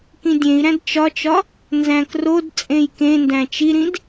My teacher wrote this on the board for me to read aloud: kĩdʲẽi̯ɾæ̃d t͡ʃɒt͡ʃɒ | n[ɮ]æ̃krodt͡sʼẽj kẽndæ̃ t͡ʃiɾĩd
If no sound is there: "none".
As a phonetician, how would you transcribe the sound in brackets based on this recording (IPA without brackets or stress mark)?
z